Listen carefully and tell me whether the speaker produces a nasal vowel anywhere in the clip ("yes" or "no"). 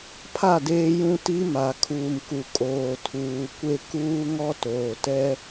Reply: yes